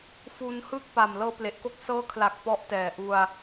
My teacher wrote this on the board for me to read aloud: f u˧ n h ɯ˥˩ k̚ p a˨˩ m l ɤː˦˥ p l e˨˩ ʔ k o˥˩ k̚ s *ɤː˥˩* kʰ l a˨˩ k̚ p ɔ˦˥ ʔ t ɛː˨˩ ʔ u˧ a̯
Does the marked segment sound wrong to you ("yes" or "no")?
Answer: yes